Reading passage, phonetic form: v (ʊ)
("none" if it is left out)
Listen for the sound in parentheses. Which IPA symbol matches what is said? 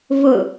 ʊ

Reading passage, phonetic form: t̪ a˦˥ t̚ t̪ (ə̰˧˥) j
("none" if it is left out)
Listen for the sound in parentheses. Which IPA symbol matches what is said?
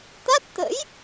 ə̰˧˥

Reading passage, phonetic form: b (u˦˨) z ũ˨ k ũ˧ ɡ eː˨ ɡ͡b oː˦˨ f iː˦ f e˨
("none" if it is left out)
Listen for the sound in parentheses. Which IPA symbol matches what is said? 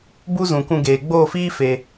u˦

